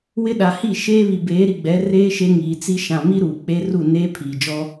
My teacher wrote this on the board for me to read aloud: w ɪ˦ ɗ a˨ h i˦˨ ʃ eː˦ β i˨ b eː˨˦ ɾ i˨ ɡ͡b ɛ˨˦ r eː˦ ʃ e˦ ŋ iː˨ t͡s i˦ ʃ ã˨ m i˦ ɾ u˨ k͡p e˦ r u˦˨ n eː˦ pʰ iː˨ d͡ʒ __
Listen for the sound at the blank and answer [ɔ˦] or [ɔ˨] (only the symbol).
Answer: ɔ˦